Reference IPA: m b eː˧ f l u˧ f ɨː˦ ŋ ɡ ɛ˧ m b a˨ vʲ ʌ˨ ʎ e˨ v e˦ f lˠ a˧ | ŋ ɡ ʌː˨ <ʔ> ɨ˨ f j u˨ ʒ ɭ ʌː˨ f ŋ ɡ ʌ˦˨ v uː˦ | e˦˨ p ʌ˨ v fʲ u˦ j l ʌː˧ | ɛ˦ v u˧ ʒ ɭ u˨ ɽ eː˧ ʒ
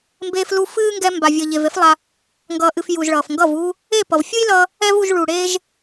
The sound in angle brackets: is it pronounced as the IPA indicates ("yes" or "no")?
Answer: yes